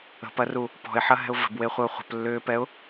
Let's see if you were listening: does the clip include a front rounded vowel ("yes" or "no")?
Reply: yes